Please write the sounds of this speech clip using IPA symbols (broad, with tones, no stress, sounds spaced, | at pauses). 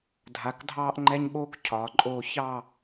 dʱ a˨˦ k dʱ ɑː˦ ʔ ŋ͡ǃ ɛ˦ ɲ ɓ oː˦ k cʰ ɒː˨ ǃʼ oː˧ ç ɑ˦˨